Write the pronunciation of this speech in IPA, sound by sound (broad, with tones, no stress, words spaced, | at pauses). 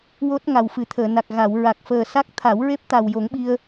wo˦˥t̚ ŋa˨˩wfɨ˨˩˦t̪ʰəː˨˩˨ na˨˩k̚ɣa˨˩˨w ɹa˨˩k̚fəː˨˩sa˦˥k̚t̪ʰa˨˩˦w ɹe˦˥p̚t̪a˨˩w jo˨˩˦ŋɓi˧ə̯